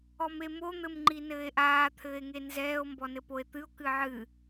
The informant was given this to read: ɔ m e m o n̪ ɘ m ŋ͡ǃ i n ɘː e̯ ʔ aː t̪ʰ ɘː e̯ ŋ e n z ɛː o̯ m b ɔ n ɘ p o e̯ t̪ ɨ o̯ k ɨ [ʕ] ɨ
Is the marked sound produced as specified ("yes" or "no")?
yes